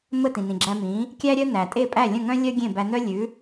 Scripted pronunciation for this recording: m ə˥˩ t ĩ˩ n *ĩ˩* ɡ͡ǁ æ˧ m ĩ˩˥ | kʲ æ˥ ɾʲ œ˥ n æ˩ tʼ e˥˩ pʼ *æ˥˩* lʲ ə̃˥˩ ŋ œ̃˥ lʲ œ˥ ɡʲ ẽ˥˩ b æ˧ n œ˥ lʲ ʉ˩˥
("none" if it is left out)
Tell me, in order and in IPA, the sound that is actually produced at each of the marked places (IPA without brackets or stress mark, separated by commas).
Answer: ĩ˩, æ˥˩